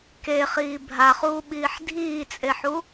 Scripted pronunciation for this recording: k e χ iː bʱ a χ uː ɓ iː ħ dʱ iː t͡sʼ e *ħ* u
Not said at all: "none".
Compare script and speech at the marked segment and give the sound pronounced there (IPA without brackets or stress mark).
ħ